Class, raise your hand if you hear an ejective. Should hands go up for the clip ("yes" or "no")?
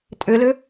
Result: yes